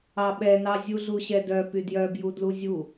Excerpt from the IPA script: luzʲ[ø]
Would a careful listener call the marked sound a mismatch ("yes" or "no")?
yes